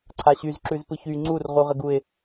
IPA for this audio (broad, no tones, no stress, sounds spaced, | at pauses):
ǀʰ a ɕ y z ǁ ʉ z p ɯ ç y ŋ͡ǀ u r ʁ u ʁ ə ɡ u ɪ̯